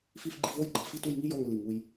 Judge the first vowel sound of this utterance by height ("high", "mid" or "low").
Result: high